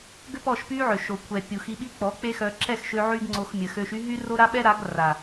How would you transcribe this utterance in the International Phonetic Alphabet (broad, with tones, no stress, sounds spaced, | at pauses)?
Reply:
ɡ ø˦ p ɔ˦˨ ʃ p y˦ ʕ ø˨ ʃ o˨ kʷʰ ɛ˨ pʲ u˨ x i˧ ɓ i˦ k͡p ɔ˨˦ k͡p e˦ x œ˧ ǁ ɛ˦˨ x ʃ ø˧ ʕ y˦ ɡ ŋ͡ǀ o˧ x mʲ ə˨ x ø˧ ʃ y˦ ɦ y˦ r o˦ ɾ a˦ ɓ ɛ˦ ɾ a˨˦ ɡ r a˨